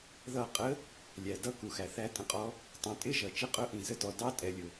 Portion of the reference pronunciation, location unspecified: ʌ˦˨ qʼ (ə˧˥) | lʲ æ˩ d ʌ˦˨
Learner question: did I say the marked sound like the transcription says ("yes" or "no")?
yes